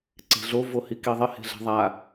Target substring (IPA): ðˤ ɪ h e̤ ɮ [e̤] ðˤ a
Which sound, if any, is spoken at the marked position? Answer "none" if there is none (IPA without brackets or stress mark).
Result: ɛ̤